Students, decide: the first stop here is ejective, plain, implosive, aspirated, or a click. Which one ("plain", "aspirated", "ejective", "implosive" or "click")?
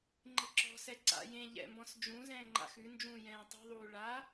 click